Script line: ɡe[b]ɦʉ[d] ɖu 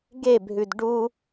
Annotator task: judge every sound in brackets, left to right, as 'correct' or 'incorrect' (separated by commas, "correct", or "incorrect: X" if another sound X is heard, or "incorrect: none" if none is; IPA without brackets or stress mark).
correct, correct